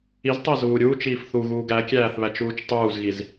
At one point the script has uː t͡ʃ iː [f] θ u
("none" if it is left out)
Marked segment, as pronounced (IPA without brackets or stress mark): f